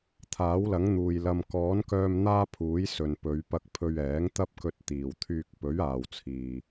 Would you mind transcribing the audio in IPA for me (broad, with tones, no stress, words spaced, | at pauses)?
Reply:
t̪ʰaː˨˥wlɐ˨˥ŋn̪uː˨j lɐ˨mkɔː˨˥nkœː˧m n̪aː˥pʰuː˨˥jsɵ˨n pɵ˨˧ɥ pɐ˧k̚pʰɵ˧ɥɛː˨˥ŋ t̪ɐ˥p̚kɵ˧t̚ t̪iː˨˩wt̪ʰyː˧k̚ pɵ˨˥ɥaː˨wt͡sʰiː˨